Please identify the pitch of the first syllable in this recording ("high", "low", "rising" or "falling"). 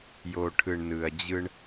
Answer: low